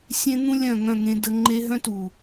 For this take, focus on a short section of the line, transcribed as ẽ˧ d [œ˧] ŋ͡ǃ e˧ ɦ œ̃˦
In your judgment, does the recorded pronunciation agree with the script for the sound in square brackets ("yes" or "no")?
no